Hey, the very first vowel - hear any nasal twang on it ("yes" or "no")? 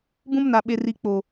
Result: yes